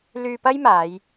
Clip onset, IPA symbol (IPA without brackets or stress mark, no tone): l